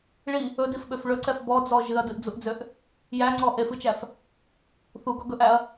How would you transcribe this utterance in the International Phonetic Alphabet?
ɭ i | ɵ d i f ɓ ø f ɭ ɵ ǀ ɛ f b ɔ d͡z ɔ ʒ ɨ ɐ̯ d ɨ ʔ d͡z u ʔ d͡z ø ʔ | j æ ŋ͡ǀ ɔ ʔ e f ɨ t͡ʃ æ f | θ u ɡ ɔ ɡ ɵ ʔ æ ɐ̯

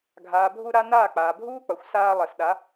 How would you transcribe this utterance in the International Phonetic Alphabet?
ɡʱ aː˨ bʱ u˧ ɾ a˧ n aː˦˨ k͡p aː˨ bʱ uː˦ k͡p ʌ˨ xʷ s aː˧ lˠ ɛ˨ s ɗ a˨˦

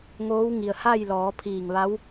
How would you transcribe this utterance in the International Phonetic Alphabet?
ŋ oː˧˥ w ŋ i˩ ə̯ h a˥˨ j l ɔː˩˧ pʰ iː˧˩ ŋ ʋ a˧˥ w

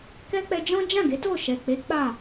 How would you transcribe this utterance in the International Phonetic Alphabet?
k ɛ˦ k͡p ɛ˧ d͡ʒ ɔ̃˦ d͡ʒ ã˦˨ ɡ e˨˦ t o˦˨ ʃ ɛ˨ k͡p e˨˦ k͡p a˦˨

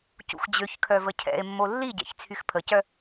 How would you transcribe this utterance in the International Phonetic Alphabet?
c ṵ x d͡ʑ ø ç kʰ œ v ə cʰ ɛ̰ e̯ mː o lː i ɟ ɛ̰ ç t͡sʰ y x pʰ ə c œ

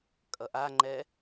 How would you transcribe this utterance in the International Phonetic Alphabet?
kʼ ʌ ʔ a ŋ͡ǃ ɛ

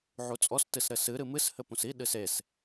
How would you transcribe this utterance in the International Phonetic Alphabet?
ʕ u t͡sʼ ɔ s t ɨ s ɾ ɘ s ɨ ɾ ɨ m ɨ s h ɘ p ũ s i ɗ ɨ s e s

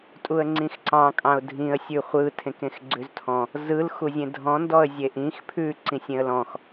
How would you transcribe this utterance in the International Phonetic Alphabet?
tʼ u ə̯ ŋ͡ǀ ĩ x ǀ ɑ̃ kʼ ɑ̃ ʊ̯ dʱ ĩ ə̯ sʲ ʉ χʷ ɯ tʰ ẽ k ẽ x ɡ͡ǀ ʉ z tʰ ɔ̃ | z ɯ l x u zʲ ẽ dʱ ɔ̃ n d ɔ ə̯ zʲ e ʔ ĩ x pʰ ʉ ǀ ĩ sʲ ẽ ə̯ l ɔ̃ x

